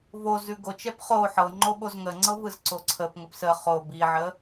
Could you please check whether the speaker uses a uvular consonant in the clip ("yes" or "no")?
yes